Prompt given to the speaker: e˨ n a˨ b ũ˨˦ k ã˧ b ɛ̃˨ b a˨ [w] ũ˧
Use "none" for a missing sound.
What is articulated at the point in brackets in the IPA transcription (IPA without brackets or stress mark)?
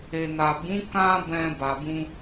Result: b